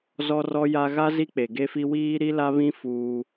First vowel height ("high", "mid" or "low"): mid